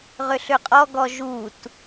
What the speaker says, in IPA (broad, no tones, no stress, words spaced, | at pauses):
ʁʏɬʏqʼɔɡɔ ʒut